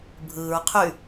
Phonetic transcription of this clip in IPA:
bʱɯːɹ qʰy

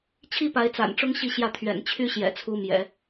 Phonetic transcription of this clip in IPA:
t͡ɕʰi˥ pa˧˥ɪ̯t͡sa̰˨˩nʈ͡ʂʊ˥ŋ ɕi˥˧ɕjä˥˩t̪ʰɥɛ̰˨˩n t͡ɕʰy˥ɕjɛ̰˨˩t͡sʰu˧˥ mjɛ̰˨˩˦

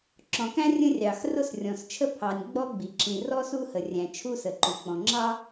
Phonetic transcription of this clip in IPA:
ǁɔ̃˩kæ̃˥ rʲə̃˥rʲɑ˩x rʊ˥srʲɔ̃˩st͡ʃʰə˥ pʰɑ˩nʲ ɡ͡bɔ˥ɡ͡bi˩ǁĩ˩ rɔ˥su˥hə˩rʲæ̃˩ t͡ʃʰu˥sə˩ǃu˩k͡pɔ̃˩ ŋ͡ǁɑ˥

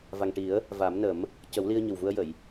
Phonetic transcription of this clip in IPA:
va˨˩ŋʈi˨˩˦ə̯ | va˨˩˦m nə˨˩˦m | cə˨˩˦wli˧ə̯ ɲə˨˩wvu˧ə̯jə˨˩˨j

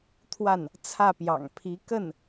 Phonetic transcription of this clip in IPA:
t̪ʰwa˥˩n | t͡sʰä˥˩ pjɑ̰˨˩ŋpʰi˧˥ kə˥˩n

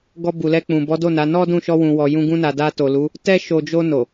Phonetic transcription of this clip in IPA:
ɡɔ˧bu˨lɛ˧ k͡pũ˨bɔ˨˦do˦˨na˨˦ nɔ˦dũ˦˨ʃɔ˧wũ˨ wɔ˨jũ˧ɡũ˧ na˨da˧ to˨lu˨˦ | tɛ˧ʃo˨ d͡ʒo˧ no˨

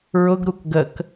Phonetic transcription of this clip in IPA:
ɹʊɡɾuk ɡək

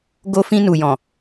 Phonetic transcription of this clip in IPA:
ɡo˧fĩ˧nu˨jɔ̃˨

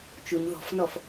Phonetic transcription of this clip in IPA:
t͡ʃuɲ ðɔ̤fnɔf

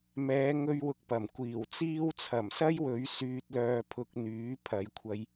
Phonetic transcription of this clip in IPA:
mɛː˨˧ŋɵ˧ɥwʊ˨k̚ pɐ˨˩mkʷiː˨˩wt͡siː˥w t͡sʰɐ˨˩msɐ˥jwɵ˨˧ɥ syː˧t̚lœː˧pʰʊ˧k̚n̪yː˨˥ pʰɐ˨˧jkʷʰɐ˧j

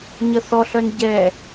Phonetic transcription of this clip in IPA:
ɲəθɔɬœn ɟɛ

